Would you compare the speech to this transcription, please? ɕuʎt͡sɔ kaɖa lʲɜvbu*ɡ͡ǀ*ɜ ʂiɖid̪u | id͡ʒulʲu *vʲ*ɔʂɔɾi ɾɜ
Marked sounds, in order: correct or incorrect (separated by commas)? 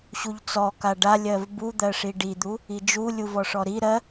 incorrect, incorrect